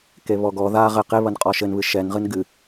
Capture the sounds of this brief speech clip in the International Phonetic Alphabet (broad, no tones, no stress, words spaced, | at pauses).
keβɔɡɔ ða ʁɘ qe βɐnqʼɔʃɘnβɨ ʃɛnʁɨn ɡɨ